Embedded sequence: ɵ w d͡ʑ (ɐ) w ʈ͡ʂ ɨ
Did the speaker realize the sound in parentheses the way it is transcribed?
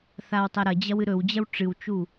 yes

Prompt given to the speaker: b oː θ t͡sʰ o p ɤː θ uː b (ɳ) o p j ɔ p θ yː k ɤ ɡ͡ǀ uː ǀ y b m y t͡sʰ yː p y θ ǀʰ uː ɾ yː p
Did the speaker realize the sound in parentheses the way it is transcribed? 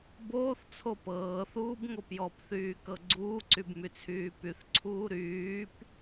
no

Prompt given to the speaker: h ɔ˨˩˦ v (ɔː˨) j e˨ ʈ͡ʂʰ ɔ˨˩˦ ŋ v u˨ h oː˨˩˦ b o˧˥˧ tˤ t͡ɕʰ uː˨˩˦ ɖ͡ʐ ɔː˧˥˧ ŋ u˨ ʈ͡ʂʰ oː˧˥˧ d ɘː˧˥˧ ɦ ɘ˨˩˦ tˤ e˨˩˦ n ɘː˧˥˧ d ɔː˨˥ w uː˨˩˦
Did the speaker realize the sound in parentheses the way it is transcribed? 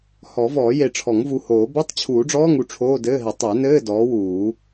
no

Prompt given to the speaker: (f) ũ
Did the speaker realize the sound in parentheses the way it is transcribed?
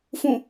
yes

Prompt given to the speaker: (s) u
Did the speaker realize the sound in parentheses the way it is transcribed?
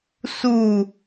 yes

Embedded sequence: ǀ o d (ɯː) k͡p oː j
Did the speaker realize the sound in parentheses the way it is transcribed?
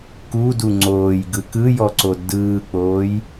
yes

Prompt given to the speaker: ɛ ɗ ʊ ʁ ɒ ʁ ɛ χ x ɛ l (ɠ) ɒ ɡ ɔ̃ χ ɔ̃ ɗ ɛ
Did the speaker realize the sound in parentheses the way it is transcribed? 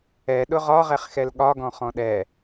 yes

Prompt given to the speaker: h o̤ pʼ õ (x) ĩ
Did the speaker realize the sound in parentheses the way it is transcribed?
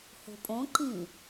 no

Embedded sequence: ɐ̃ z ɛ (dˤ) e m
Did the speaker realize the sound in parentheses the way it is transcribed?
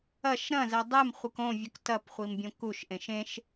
yes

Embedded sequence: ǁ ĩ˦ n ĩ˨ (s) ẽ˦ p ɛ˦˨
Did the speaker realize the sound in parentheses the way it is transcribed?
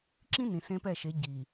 yes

